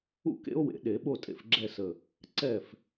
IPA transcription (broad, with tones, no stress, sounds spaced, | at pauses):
ṵ˥˧ k ḛ˦˥ o̯ w ḛ˨˩˦ ɗ e˨˩˦ ɓ o˥˧ tʼ ḛ˥˩ f ɡ͡ǁ ɛ˥˧ s ə˧˩ | ǀ ɛ˥˩ f